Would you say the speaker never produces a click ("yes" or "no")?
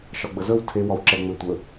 no